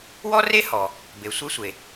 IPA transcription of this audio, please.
wɔ˥re˥ hɔ˩ | be˩sʷe˥sʷe˩

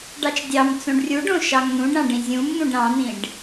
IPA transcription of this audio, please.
ɖɑt͡ʃdʲɑmt͡sõɖ rʲuɖõ ʃɑŋn̪ũɖɾɑ̃ ɖĩzʲũmn̪ũɖ ɾɑ̃n̪ĩɖ

